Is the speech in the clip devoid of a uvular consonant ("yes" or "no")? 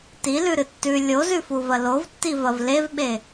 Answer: yes